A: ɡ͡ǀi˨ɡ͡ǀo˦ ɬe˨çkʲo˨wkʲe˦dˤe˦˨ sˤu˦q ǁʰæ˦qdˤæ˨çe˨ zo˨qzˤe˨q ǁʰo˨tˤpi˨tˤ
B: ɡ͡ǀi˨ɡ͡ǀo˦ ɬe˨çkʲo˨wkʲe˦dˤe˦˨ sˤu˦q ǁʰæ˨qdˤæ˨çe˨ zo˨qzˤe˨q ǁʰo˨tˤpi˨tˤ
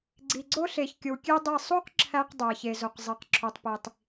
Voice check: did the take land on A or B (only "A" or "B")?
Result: A